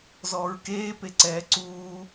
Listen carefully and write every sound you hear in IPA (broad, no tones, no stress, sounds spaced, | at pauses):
z ɔː ɹ k eː p e ǀ ɛː ǀ uː